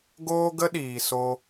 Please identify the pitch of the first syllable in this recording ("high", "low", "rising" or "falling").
high